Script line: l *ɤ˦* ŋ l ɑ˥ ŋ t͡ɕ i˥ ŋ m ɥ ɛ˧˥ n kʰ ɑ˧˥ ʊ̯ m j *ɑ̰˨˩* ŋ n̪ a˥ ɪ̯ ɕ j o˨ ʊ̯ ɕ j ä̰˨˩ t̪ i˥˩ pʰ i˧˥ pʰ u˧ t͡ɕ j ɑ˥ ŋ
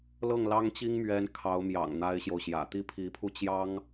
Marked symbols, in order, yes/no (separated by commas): no, yes